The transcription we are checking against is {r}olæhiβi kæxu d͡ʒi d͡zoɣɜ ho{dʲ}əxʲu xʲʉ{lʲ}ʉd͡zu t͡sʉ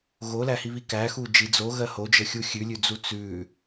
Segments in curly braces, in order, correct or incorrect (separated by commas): incorrect, incorrect, correct